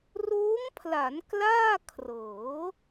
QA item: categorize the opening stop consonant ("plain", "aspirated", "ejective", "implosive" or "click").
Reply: aspirated